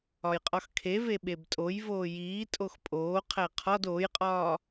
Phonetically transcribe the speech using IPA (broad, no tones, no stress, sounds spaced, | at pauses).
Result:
ɒ j qʼ ɒ x kʰ e v e ɓ e b tʼ o j v oː j iː tʼ o x pʼ oː qʰ æ qʰ ɒ d oː j qʼ ɒː